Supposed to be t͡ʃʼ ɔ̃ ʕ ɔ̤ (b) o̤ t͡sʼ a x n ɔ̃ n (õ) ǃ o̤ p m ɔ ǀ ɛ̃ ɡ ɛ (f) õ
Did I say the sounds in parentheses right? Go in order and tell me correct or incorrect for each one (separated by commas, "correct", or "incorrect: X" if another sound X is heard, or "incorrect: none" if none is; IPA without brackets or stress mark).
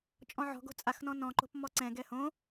incorrect: ɡ, incorrect: ɔ̃, incorrect: h